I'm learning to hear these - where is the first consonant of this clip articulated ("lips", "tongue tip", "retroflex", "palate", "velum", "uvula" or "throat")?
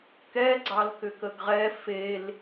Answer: velum